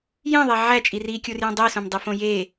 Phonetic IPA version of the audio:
jẽðˤe ʕæt͡ʃʼi rikʲurjõ dˤisõmdˤifõ je

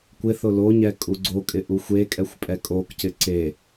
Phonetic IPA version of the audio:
kʷɪθʊ loɲɛ kʼuɡ͡ǀokʼɪ ʔuxʷekʼɛxʷ pʼɛkʼokcɪ ǀe

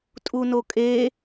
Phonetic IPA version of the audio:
tʼunokʼe

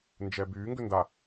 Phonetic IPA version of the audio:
nd͡ʒɛbyː ŋɡʏnda

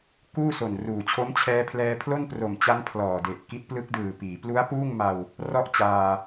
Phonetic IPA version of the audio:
kuː˥˩so˨˩nruː˨˩t͡ɕʰo˦˥m t͡ɕʰɛː˧pʰlɛː˧pʰlo˥˩n pro˨˩mt͡ɕa˦˥n pʰlɔː˨˩de˨˩ʔ ki˦˥t̚plɯ˦˥k̚dɯː˨˩ piː˩˦plu˦˥a̯puː˥˩ŋ ma˧w | rɔ˥˩ʔt͡ɕaː˧

